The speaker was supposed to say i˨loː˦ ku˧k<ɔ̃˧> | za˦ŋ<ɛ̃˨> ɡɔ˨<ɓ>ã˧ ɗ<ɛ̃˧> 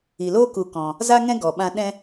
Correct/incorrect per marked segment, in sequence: correct, incorrect: ɛ̃˦, correct, incorrect: ɛ̃˦

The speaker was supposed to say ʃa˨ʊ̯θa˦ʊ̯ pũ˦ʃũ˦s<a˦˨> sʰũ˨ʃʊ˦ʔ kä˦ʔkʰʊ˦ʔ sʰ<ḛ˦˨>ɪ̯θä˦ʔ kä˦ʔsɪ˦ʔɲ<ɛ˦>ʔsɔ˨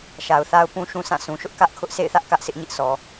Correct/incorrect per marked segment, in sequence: incorrect: ã˦˨, correct, incorrect: ɪ˦

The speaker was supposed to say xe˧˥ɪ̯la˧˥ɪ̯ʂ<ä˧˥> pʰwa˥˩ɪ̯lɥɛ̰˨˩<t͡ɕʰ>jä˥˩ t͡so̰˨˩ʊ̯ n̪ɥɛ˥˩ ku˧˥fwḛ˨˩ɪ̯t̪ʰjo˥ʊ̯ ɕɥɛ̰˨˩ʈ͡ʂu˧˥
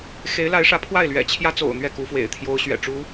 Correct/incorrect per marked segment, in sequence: correct, correct

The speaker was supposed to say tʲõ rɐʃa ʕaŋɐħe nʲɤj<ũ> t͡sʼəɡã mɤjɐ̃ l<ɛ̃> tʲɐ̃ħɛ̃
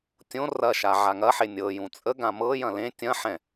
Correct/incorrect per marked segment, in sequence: correct, incorrect: ẽ

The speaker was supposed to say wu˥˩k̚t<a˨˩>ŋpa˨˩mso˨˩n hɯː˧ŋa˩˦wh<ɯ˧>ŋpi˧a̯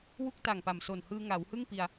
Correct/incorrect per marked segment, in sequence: correct, incorrect: ɯ˥˩

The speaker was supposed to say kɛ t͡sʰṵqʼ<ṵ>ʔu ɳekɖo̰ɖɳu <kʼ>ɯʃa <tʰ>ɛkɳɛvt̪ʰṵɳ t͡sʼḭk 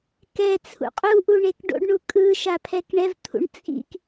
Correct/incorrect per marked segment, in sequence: incorrect: u, correct, incorrect: pʰ

